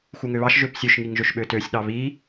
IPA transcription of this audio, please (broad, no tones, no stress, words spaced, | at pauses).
xuŋøβɑʃ ʒøpsʲøʃ ŋiŋʒøʃɓøtøsʲ ɗɑβi